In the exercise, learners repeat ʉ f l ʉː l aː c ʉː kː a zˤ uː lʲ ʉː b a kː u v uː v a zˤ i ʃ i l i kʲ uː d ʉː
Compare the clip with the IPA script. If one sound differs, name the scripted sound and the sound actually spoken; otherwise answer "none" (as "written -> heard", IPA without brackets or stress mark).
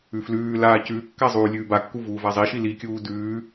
none